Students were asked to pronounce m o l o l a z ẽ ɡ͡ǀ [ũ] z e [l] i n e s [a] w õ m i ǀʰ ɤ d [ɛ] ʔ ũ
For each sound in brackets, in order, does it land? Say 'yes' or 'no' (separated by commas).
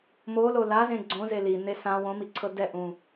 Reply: no, yes, no, yes